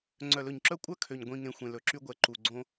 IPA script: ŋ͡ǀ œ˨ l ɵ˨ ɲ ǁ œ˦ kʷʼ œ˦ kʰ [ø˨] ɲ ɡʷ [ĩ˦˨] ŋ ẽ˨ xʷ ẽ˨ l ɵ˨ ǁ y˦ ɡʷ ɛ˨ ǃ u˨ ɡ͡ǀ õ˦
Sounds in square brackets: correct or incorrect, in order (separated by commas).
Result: correct, incorrect